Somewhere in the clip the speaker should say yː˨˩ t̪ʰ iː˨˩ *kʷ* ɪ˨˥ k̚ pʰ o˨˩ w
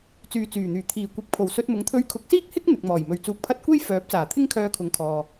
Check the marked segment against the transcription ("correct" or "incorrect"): correct